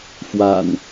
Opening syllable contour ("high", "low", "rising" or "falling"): low